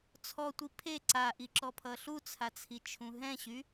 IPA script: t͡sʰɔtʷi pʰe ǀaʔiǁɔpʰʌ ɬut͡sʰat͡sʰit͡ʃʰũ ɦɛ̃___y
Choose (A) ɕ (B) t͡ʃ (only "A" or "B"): A